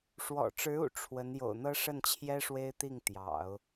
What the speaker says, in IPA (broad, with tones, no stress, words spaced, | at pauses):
ʂwɔ̰˨˩ʈ͡ʂɻ̩˧˥ṵ˨˩ ʈ͡ʂʰwə˧˥n jo̰˨˩ʊ̯n̪ɤ˥ʂə˥˩nt͡ɕʰjɛ˥ ʂwe˥ɪ̯t̪i˥˩ŋt̪jɑ̰˨˩˦ʊ̯